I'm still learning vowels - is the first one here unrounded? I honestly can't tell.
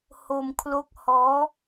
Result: no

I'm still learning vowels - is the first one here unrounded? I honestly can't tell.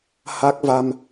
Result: yes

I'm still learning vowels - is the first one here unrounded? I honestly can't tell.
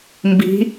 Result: yes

